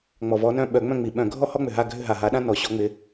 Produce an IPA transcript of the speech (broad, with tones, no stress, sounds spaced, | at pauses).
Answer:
ŋ͡m ɔ˨˩ v ɔ˨˦ n œ̃˦˨ ɓ œ˧˩˧ ŋ͡m œ̃˦˨ ŋ͡m i˨˩ ɓ œ̃˧˩˧ ɡʱ ɔ˦ h ɔ˦ ŋ͡m ʏ˨˩ ɦ a˦˨ ɡʱ ʏ˦˨ ɦ a˨˩ ɦ a˨˦ ɗ ã˦ n ɔ˨˩ ɕ ɔ˨˦ ŋ͡m ɪ˨˦